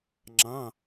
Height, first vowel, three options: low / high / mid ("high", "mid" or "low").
low